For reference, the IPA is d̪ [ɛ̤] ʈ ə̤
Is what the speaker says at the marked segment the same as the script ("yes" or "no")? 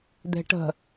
no